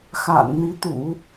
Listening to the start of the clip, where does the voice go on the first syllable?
low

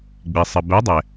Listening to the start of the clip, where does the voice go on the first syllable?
low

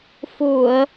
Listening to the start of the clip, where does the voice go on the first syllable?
low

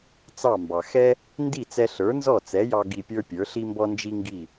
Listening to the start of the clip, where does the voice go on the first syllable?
falling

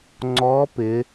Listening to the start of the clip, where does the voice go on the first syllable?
rising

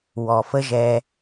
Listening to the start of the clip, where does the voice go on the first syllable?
low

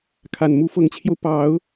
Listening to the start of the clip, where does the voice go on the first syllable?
low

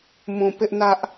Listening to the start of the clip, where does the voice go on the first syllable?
low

